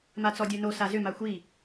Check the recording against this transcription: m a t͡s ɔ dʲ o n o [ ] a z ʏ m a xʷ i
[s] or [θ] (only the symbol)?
s